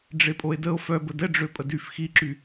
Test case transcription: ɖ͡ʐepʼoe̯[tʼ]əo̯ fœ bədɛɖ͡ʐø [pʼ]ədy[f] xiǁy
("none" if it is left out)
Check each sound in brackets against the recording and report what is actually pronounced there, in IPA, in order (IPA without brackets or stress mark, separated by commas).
d, pʼ, f